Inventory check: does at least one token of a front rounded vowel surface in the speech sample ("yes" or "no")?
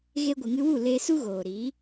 no